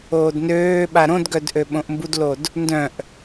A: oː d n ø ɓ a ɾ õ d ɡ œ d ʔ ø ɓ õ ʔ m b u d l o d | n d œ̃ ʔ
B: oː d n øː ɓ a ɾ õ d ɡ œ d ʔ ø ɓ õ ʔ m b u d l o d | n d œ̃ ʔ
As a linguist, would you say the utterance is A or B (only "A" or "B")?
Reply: B